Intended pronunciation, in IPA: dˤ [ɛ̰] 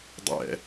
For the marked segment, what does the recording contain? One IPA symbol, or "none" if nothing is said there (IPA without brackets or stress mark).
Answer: ɛ̰